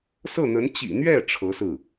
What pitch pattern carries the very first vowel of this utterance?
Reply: falling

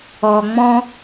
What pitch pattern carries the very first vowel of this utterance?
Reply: low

